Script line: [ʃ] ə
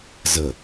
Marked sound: incorrect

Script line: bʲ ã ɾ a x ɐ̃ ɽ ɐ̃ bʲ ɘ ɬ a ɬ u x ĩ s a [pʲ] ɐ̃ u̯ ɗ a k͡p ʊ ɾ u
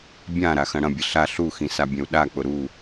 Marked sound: incorrect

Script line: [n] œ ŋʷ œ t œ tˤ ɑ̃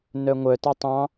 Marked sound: correct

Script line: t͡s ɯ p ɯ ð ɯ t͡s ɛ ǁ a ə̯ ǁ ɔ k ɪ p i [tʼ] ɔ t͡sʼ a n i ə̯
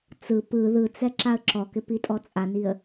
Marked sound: correct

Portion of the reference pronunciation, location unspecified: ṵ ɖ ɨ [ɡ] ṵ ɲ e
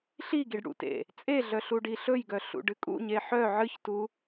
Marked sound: incorrect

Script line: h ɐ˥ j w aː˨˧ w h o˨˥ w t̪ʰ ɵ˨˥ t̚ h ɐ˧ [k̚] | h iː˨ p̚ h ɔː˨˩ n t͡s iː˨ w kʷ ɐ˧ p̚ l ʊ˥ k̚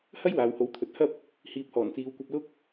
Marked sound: incorrect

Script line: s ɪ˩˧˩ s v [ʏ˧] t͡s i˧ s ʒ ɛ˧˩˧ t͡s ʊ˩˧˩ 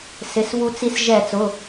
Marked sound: incorrect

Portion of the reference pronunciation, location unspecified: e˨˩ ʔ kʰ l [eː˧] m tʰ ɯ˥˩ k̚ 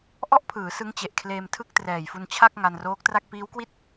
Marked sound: correct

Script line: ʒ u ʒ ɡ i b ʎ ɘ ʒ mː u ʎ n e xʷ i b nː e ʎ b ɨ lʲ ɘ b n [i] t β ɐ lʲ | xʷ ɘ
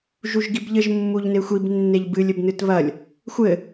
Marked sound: incorrect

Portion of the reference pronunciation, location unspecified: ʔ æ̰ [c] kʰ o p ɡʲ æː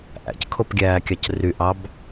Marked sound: correct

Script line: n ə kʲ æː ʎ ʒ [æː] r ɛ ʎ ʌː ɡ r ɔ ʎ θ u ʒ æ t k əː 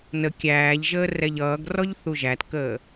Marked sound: incorrect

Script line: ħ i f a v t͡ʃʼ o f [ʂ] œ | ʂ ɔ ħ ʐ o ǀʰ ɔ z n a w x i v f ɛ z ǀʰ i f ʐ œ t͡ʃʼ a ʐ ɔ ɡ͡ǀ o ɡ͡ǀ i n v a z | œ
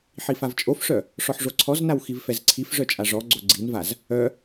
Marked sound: correct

